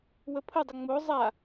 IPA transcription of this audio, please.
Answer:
w ə pʰ ə dˤ ə ŋ͡m o zˤ a

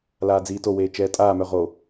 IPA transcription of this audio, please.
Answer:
l aː d͡z iː t o w eː t͡ʃ ɛː tʼ aː m œ ʁ o

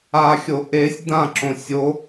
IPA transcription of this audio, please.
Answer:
a xʲ o ʔ e sʲ d̪ ã ǁ õ sʲ o

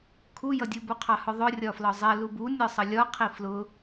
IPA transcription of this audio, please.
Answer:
kʰ u j ʌ dʲ u b u qʰ ɑ h ʊ ðˤ ʊ rʲ ɒ f l ɒ zˤ ɛ l u b u nʲ ɒ sˤ ʌ lʲ ɒ qʰ i f l ʊ

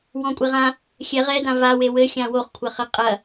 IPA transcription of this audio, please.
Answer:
w ɔ̃ kʷʼ e ʁ ã | xʲ ɛ ʁ ɛ d ã v a w e w ɘ xʲ ã w o χ kʷʰ ɐ χ ɘ qʼ ɐ

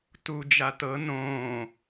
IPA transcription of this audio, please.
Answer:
t u d͡ʒ a t ɤ n õː

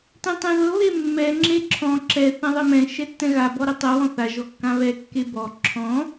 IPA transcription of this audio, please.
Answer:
t ɛ̃ tˤ ɛ̃ ð ɤ β e mː ɛ ŋ͡ǁ e ǁʰ ɔ̃ ǁ ɛ θ ɛ̃ ðˤ ɛ m ɛ̃ ʃ ɛ tː ɛ̃ ɣ a b ɔ ɾ ɛ tˤ ɤ w ɔ̃ θ a ʒ ɔ kː ã β ɛ kː e b ɔ ǁʰ ɔ̃

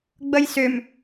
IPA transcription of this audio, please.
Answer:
ɡ͡b ə j s ʏ m

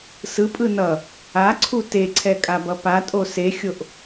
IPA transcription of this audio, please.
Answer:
s ɯ pʼ ɯ n ʌ | a ǀʰ u t e ǀʰ ɛ kʼ a b ʌ p a tʼ o s e xʲ o ʔ

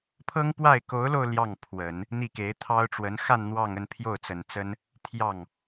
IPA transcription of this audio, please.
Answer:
pʰ ɤ˥ ŋ p w a˥˩ ɪ̯ k o˧˥ ʊ̯ l o˧ ʊ̯ l j ɑ˥˩ ŋ pʰ w ə˨˩˦ n | n̪ i˥˩ k e˧˥ ɪ̯ t̪ʰ ɑ˥ ʊ̯ ʈ͡ʂ w ə˧˥ n x a˥˧ n n̪ w ɑ˥˧ ŋ ə˥˧ n pʰ j o˥˩ ʊ̯ t͡s ə˨˩ n t͡s ə˥ n | t̪ʰ j ɑ˥˩ ŋ

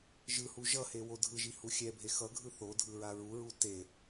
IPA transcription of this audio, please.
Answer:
ʒ ɯ h u ʒ ʌ h e w o dʱ ɯ ʒ i h u xʲ ɛ bʱ e x ʌ ɡʱ ɯ θ o dʱ ɯ ɹ a ɹ u ɹ u t e

